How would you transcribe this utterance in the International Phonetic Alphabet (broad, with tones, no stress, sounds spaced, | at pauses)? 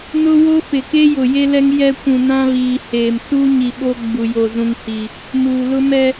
n ʊ˦ w o˦ f ɪ˨ k e˦ j ʊ˨ j e˦ l ɛ˦ ŋ j ɛ˦ kʷ ũ˨ n ã˦ β iː˨ h eː˨ m s uː˦ ɲ i˨ ɓ o˦ ɡ͡b u˨ j o˨ z ũ˨ ŋ h i˨ | m uː˨ l ʊ˦ m ɛ˦